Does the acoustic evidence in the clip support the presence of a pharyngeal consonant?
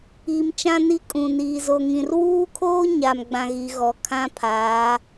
no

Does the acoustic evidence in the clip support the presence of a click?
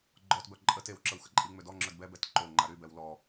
yes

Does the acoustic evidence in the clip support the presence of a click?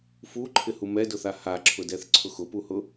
yes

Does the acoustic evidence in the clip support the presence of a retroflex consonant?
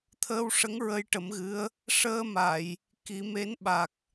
yes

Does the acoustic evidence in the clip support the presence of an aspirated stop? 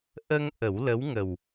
no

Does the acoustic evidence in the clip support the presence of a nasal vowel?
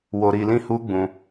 yes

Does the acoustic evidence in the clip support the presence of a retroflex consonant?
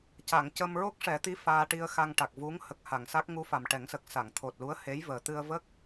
yes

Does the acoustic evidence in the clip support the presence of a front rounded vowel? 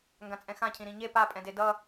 no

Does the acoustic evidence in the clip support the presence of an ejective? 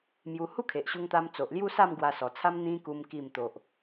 no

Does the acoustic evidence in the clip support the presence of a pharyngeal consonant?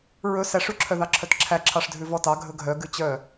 no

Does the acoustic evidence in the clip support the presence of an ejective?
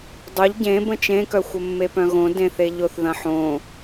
no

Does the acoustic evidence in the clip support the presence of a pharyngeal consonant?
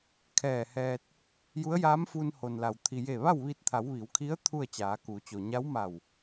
no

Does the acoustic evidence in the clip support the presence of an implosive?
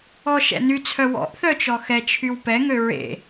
no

